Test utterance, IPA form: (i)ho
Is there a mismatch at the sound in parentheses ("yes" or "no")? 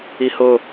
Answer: no